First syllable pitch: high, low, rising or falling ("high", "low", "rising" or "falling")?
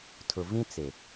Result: low